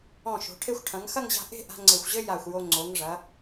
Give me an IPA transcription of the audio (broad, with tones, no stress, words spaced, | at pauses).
ɔ̃˧˩ʃo̤˩˧ ʈʰe˧xʷʈʰɐ̃˩˧ŋ xɐ˥˧ŋʑa̤˧ ʔe̤˥˧ ʔa̤˧ ŋ͡ǀe˧˩xʷʑɘ˥ ja˧˩xʷjo˧ ŋ͡ǀo˩˧ŋʐɐ˩˧